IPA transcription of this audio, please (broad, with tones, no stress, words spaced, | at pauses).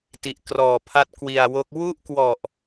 ti˨˩ʔkrɔː˨˩pʰa˦˥t̚ kwi˨˩a̯wo˦˥k̚ wu˥˩ʔkwɔ˨˩ʔ